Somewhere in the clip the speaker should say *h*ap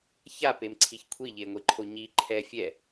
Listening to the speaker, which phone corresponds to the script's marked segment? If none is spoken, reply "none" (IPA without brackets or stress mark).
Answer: ç